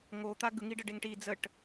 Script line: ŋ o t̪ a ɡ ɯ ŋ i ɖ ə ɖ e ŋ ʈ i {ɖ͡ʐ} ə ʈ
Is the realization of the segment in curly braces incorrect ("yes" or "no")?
yes